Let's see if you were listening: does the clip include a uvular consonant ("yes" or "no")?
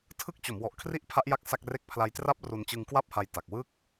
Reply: no